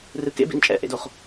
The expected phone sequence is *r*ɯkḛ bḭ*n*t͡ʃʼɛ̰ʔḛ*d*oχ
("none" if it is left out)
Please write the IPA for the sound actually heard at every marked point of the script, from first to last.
r, n, d

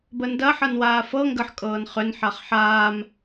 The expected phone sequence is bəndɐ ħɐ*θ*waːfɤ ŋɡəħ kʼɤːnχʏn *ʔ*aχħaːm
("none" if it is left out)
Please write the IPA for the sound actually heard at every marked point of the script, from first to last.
n, ħ

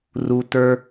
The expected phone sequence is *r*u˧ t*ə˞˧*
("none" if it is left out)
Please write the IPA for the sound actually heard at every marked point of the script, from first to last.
r, ə˞˧

